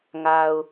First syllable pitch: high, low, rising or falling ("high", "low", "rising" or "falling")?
low